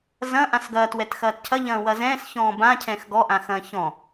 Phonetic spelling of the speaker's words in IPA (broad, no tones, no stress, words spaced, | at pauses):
zɐ̃ ʔãsɡɐːt wɛtxɐːtcʰɐ ʎɐ̃ːwɐzɛ̃ːs çɔ̃ːbã cʰɛ̃ːxɡɔ ʔãxɐ̃ːçɔ̃